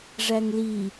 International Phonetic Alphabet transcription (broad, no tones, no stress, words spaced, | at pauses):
ʐæŋli